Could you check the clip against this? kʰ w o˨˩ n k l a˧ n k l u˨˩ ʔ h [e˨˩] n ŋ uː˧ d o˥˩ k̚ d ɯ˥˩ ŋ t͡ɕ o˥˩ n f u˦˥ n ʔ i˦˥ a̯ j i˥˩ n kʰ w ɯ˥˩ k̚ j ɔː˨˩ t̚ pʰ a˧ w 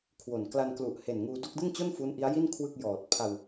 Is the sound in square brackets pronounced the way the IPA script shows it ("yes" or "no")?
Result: yes